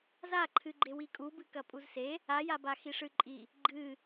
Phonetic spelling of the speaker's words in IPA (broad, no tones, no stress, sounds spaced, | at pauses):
z a ǃʰ ɨ ɡ͡ǃ e w i kʼ u b ɨ k ɐ pʼ u z s e | a j a b a x i ʂ ɨ ǃʼ i | ɡ͡ǃ ɨ